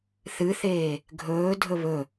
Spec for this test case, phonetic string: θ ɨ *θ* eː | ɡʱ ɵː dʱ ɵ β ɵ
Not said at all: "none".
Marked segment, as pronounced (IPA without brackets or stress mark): θ